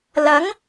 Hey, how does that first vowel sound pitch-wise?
rising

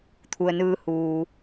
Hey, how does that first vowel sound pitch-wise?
low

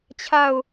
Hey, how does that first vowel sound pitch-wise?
falling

